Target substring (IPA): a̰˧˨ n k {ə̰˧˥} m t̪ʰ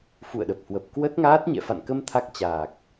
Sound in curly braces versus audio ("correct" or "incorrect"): incorrect